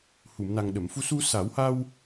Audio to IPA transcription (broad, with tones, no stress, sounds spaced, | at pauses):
h u˨˩˨ m n a˨˩ ŋ ɗ ə˨˩˨ m f u˧ s u˧ s a˨˩˦ w h a˧ w